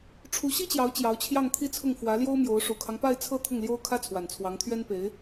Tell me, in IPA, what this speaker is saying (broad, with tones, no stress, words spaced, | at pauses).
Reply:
ʈ͡ʂʰu˧˥ɕi˥t͡ɕjɑ˧˥ʊ̯ t͡ɕjɑ˧˥ʊ̯t͡ɕʰjɑ˥˧ŋt̪ʰi˥˧t͡sʰʊ˥˩ŋ fwä˧˥ljo˥ʊ̯mjo˧˥ʊ̯ ʂu˨˩kʰɑ˦ŋpa˥˧ɪ̯t͡sʰɤ˥˧ t̪ʰʊ˥˩ŋljo˥ʊ̯ kʰä˥t͡sʰwa˨˩nt͡sʰwɑ˧˥ŋt̪ʰɥɛ˥n pe˧˥ɪ̯